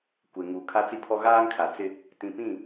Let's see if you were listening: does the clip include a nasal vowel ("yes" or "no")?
yes